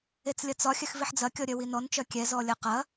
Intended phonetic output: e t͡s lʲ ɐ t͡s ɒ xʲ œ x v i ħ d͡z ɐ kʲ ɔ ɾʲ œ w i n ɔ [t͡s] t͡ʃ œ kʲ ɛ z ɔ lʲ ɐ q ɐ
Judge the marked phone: incorrect: n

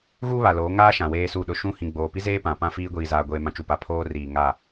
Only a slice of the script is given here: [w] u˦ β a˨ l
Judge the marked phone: incorrect: ɣ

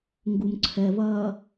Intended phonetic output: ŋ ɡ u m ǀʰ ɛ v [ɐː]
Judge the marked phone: correct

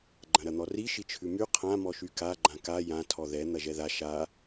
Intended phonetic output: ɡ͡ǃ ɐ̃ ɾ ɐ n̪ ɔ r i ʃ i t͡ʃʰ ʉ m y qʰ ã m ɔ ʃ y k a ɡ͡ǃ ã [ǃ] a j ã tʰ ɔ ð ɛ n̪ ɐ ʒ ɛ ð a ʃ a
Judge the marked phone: incorrect: k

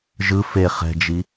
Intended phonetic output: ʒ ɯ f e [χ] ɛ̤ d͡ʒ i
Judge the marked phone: correct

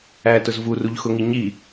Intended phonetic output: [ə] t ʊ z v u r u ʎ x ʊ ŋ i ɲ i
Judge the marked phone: incorrect: æ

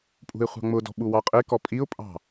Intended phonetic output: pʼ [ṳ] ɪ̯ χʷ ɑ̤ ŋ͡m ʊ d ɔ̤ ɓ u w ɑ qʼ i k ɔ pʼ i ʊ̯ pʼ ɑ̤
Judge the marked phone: correct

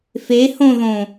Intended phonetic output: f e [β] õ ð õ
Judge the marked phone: incorrect: h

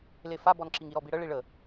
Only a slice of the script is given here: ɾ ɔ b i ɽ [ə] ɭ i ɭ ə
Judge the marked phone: correct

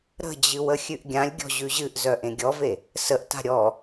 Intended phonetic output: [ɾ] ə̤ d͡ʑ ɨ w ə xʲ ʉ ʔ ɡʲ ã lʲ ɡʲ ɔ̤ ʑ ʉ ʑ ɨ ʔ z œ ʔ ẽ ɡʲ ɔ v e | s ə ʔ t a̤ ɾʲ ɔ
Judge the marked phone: correct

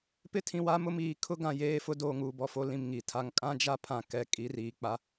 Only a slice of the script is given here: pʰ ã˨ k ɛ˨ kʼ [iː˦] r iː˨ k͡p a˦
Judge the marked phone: incorrect: i˦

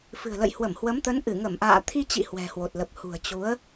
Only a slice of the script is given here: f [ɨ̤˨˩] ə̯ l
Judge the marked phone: correct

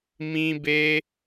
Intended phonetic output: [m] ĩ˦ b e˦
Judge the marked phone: correct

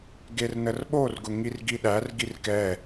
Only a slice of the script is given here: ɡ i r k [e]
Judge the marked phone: incorrect: ɛ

